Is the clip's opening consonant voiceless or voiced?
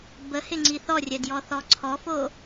voiced